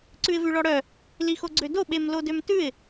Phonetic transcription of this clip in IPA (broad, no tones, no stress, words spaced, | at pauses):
ǀʉɪ̯vʉɭɔɽœ | lixoɡ͡ǀødo ɓemlodømtʉɪ̯